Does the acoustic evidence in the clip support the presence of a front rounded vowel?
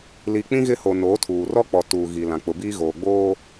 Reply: no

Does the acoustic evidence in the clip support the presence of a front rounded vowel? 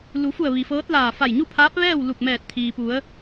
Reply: no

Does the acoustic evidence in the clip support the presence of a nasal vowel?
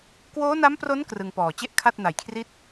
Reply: no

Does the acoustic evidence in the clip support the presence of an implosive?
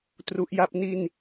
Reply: no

